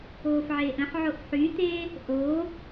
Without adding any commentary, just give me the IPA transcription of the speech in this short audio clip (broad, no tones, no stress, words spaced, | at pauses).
oːfʕeːʔə̃ħʕoʔ ħyt̪e | ʔo